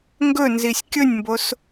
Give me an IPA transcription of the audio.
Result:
ŋɡɵnzisʲ kʲɵnʲmbos

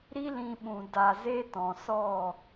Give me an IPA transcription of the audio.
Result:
ɾi˦lĩ˧ɓũ˨ da˨ze˧ tɔ̃˨sɔ˦˨

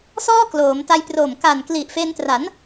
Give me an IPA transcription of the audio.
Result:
sɔː˥˩kloː˩˦mta˧j pro˨˩mka˨˩nkli˨˩ʔ fe˧ntra˩˦n

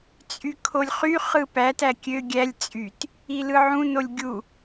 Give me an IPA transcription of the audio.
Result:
t͡sʼykʰolʲχy χɯpæt ækʲø ɡʲælʲ t͡sʼyt | ilɯʕũ nolʲɡʲu

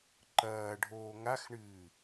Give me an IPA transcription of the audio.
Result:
ǃɐːɖʱoː ŋaxɳɨː

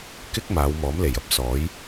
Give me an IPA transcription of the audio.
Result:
kɪ˥k̚ maː˨˧wmɔː˨˥m le˨˩jɐ˧p̚ sɔː˨˥j

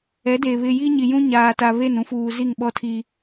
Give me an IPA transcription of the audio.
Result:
ɛ˨˦de˨ βɪ˨ ji˦ɲi˨jũ˦ ɲaː˨ ta˨ βe˦˨nũ˦fuː˨ zi˦˨ŋɓɔ˦tʰi˦

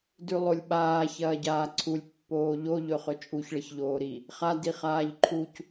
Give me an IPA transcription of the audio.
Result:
dʉlˠolʲɓaː çɐːɟaːǀʰulʲ pːoːʎo ʎɵχɵt͡ʃʼuç ɭɐçʎoːɾi | χa diχaːʎǃʰuc

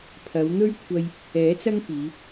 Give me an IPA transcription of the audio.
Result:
pʰɐ˨˧wn̪ɵ˥ɥ kʷʰɐ˧j | ɛː˨˥t͡sɐ˥ŋ piː˨˧

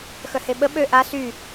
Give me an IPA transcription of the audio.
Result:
xœheɓə ɓø ʔa sy

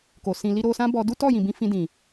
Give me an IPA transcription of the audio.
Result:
ko˨sĩ˧ li˧ɾo˧sã˦bɔ˧ du˦tɔ˦˨jĩ˨bĩ˧ fĩ˧dĩ˨

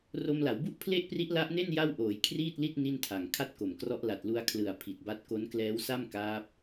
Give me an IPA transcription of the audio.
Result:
ro˧mla˩˦wbu˥˩ʔ pʰle˥˩ʔpri˦˥ʔla˦˥ʔne˥˩n ja˥˩w ʔoː˩˦jkʰriː˥˩t̚li˥˩t̚ ni˥˩ntʰa˨˩ŋ kʰa˥˩t̚ko˨˩mkrɔ˦˥ʔ la˨˩t̚lu˧a̯kʰlɯ˨˩a̯ pʰi˨˩t̚ba˦˥t̚ ko˦˥nklɛː˦˥wsa˥˩m kaː˦˥p̚

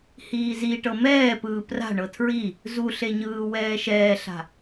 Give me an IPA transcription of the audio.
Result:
hiːziʈɤ mɛːpɯː pra̤ ɳɤtʰɹi | zuɬeɲɯː wɛːʃɛːɬa̤

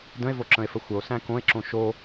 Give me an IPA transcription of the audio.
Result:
də̃e̯voǁə̃e̯fə xʷəo̯sæ̃ kõe̯ǁõ ʃo

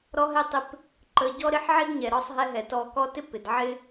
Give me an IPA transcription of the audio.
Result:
ɾɔ˦ɦɛ˦tˤɪ˦p | ǃə˧ɟɔ˦ɾɪ˦ħʕɪ˦d ɲɛ˨ɾɔ˦˨sˤ ɦɛ˧ɦɛ˨ tɔ˧kɔ˦ tɪ˦pɪ˨dʕɪ˦

